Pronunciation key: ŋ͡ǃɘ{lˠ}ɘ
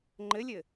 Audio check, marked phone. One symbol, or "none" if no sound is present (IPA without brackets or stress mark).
lʲ